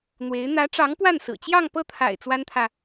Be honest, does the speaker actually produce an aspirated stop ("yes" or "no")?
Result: yes